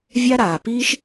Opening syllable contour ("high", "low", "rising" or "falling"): high